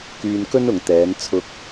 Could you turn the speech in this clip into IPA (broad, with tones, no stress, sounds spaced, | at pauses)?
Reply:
k yː˧ n k ɵ˥ n ʊ˨ ŋ t̪ ɛː˨˧ n t͡sʰ ʊ˧ k̚